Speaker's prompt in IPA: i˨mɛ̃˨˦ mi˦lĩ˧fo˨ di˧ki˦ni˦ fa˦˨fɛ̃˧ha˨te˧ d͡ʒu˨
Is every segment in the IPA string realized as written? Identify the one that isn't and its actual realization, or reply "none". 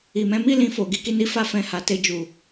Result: d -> ɡ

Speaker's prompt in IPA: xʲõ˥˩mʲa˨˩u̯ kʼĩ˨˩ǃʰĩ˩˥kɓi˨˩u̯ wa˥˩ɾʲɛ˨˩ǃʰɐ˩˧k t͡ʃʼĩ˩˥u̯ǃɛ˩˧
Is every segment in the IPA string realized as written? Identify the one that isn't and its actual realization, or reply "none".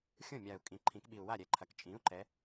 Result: none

